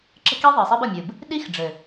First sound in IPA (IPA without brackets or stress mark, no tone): ǁ